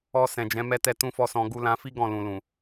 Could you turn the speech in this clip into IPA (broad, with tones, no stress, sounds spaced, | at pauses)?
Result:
ɔ˧ s ɛ̃˨ d͡ʒ ɛ̃˨˦ m ɛ˦ t ɛ˦ t ũ˦ f ɔ˦ s ɔ̃˧ ɡ u˧ l ã˧ f i˦ ɡ ɔ̃˦˨ l ũ˨ l ũ˨